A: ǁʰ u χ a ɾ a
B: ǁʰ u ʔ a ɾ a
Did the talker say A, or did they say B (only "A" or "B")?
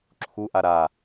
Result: B